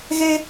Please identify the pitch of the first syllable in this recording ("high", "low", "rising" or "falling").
high